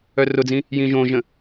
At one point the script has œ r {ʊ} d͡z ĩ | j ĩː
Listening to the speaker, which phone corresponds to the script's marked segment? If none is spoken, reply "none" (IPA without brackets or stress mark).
ʊ